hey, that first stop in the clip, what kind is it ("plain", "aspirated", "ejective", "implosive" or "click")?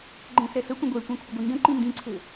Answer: click